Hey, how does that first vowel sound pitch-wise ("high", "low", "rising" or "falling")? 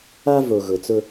high